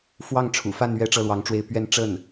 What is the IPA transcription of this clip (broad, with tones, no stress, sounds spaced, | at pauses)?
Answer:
f w ɑ˥˩ ŋ ʈ͡ʂʰ ṵ˨˩ f a˥˧ n ɥ ɛ˥˧ ʈ͡ʂ ɤ˥˩ l w ɑ˧˥ ŋ ʈ͡ʂ w e˥˧ ɪ̯ p ɥ ɛ˥˧ n ʈ͡ʂ ə˥˩ n